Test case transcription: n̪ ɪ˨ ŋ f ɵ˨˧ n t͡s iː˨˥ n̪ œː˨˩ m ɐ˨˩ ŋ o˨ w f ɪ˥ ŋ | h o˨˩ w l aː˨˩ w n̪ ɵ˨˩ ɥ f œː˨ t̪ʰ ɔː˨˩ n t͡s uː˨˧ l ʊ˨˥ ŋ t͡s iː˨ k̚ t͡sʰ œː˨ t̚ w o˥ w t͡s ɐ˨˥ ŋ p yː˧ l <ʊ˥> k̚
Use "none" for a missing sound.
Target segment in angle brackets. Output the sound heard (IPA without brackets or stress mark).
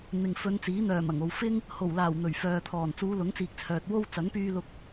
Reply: ʊ˧